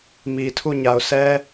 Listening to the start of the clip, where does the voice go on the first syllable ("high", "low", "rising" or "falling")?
low